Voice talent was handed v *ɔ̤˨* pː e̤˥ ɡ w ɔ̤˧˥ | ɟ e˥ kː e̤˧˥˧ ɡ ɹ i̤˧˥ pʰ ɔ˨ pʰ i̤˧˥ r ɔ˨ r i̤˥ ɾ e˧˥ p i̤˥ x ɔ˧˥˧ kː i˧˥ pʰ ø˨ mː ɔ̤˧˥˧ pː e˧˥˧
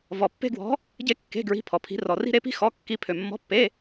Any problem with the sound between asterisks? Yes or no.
yes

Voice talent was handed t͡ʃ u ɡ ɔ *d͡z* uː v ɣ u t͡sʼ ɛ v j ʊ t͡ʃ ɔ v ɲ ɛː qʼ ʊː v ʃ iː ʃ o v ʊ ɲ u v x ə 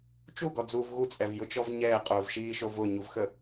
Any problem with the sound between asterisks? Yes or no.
no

